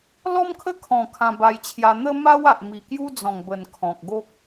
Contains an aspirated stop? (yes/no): yes